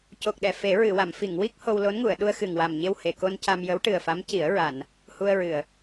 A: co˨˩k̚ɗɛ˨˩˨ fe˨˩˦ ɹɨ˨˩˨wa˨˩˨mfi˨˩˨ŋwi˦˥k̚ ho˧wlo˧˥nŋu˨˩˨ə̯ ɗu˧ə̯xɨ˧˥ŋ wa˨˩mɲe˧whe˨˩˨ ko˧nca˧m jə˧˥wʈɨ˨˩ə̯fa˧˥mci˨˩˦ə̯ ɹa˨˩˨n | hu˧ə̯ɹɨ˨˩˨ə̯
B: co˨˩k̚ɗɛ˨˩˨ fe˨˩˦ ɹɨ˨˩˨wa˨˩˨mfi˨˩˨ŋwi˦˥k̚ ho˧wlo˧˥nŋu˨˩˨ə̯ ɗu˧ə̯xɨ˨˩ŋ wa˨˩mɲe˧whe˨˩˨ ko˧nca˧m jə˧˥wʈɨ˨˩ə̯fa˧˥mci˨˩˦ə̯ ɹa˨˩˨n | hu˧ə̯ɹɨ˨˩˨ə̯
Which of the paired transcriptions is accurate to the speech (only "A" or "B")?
B